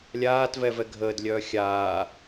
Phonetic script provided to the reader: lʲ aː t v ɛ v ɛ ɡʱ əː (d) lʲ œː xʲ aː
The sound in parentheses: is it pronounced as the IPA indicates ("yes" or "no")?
yes